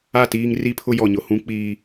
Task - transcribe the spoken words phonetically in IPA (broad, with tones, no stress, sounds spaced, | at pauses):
a˦˨ t iː˦ ŋ r i˦ pʰ ʊ˦ j ɔ˨ ɲ ʊ˨ h ũ˦ k͡p iː˨